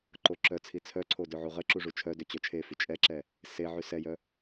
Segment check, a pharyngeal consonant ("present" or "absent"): present